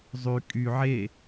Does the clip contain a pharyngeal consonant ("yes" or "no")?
yes